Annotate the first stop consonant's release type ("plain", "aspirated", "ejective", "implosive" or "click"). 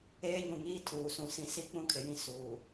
aspirated